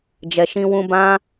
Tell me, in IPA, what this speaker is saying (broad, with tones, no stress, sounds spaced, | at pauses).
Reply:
d͡ʒ ɛ˨ ʃ ĩ˧ w ũ˧ b ã˦